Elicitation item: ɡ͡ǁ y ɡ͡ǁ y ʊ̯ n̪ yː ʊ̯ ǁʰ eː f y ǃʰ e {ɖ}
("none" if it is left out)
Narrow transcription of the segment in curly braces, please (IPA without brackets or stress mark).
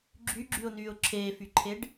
ɖ